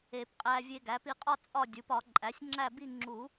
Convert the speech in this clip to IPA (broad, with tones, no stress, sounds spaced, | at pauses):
e˨˩˦ p qʼ æ˧ vʲ e˧ ɡ æ˩˥ p i˧ qʼ ɒ˥˨ t͡sʼ ɒ˥˨ dʲ u˩˥ p ɒ˨˩˦ ǃʼ æ˩˥ sʲ ŋ͡ǁ æ˥˨ b i˥˨ ŋ͡ǁ u˨˩˦